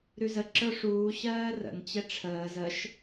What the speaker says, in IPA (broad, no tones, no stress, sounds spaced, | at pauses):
ɾ ʉ z ə ǁ ə˞ ʂ uː ɕ ɜː r ə̰ n t͡ɕ ɛ ʈ͡ʂʰ əː z ə ʃ